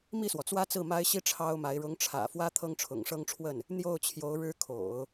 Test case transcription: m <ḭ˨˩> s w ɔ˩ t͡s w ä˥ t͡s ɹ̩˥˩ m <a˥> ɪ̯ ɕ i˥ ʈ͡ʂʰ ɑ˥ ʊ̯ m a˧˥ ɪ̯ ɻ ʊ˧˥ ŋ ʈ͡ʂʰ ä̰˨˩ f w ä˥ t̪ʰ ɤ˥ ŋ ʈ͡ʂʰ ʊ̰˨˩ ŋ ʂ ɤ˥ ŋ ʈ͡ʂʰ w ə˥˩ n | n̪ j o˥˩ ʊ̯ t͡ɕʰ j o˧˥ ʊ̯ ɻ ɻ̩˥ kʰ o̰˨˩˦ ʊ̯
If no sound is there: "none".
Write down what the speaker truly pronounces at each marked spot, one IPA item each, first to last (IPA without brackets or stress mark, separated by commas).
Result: i˥˩, a˥